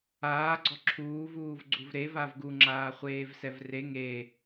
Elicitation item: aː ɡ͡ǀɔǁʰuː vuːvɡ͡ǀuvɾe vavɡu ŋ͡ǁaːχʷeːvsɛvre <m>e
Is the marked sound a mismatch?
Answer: yes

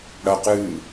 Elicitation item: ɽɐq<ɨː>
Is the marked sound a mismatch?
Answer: no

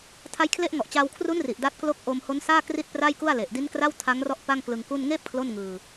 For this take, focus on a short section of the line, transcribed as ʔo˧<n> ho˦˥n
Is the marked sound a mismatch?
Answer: yes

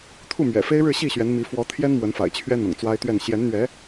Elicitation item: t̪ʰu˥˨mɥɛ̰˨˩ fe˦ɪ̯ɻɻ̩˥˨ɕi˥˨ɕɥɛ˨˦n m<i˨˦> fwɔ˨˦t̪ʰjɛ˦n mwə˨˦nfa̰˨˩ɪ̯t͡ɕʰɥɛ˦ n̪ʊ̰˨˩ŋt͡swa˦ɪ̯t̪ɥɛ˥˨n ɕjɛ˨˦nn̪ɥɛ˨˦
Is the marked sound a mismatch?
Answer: no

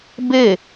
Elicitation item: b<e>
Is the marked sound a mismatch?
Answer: no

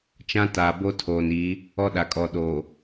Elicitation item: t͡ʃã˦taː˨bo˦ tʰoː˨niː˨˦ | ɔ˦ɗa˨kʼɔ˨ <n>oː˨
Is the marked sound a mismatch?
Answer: yes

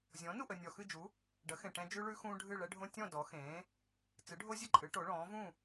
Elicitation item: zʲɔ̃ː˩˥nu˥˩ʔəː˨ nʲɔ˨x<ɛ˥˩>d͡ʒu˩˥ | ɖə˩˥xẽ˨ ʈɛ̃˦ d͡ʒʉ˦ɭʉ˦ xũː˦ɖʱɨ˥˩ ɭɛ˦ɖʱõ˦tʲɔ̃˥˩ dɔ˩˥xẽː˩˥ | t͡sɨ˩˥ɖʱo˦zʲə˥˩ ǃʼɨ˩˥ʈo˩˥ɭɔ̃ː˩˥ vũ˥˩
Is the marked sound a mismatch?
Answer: yes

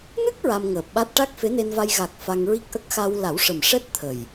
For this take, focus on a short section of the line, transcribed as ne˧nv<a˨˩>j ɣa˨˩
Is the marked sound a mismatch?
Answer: yes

